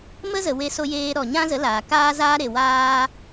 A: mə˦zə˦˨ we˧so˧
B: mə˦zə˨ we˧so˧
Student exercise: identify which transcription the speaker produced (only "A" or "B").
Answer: B